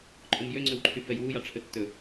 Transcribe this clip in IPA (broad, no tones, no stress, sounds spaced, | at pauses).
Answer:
ǃʼ o m j ø ŋ͡ǀ ɵ w ǃʰ y f ɛ j w u j ɑ ʈ͡ʂʰ ɵ tː ɵ